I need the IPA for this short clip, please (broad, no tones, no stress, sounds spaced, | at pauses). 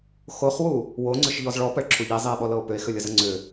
x o χ w u | w o ŋ͡ǀ ʏ ʃ ʎ ɔ z ɭ ɔ p ə ɭ ǁʰ u ʎ i zˤ i e̯ ɓ ɔ l ɤ o̯ p ʏ e̯ x ʏ lʲ ə z ə ŋ͡ǀ ʏ